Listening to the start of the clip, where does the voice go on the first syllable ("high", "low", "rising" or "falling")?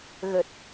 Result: low